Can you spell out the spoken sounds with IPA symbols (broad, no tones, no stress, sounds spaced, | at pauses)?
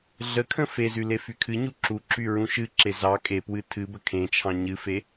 ɮ ə kʰ ə̃ f e z y l e f y kʰ ɨ ɲ u ǁ u ǁ y ɹ ũ ʃ ɨ ǁ e z ɑ kʼ e p w ɨ tʰ ɨ b ə kʰ ẽ t͡ʃʰ ɑ̃ ɲ ɨ f e